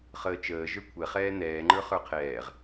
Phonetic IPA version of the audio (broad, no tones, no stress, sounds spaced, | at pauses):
χ əː t͡ʃ əː ʒ ə˞ kʷʰ ɛ χ ɛː n ɛː ŋ͡ǃ ə˞ χ ə˞ qʰ ɛː ʁ